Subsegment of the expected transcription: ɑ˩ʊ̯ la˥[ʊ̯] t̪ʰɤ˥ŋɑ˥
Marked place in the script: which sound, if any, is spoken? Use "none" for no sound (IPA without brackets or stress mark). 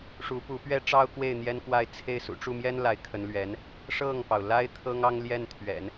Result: ɪ̯